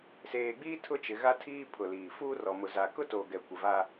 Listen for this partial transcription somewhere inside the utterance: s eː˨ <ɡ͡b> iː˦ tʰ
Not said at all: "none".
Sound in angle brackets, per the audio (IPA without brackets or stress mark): ɡ͡b